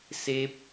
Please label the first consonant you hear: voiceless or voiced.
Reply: voiceless